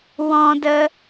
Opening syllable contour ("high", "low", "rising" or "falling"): high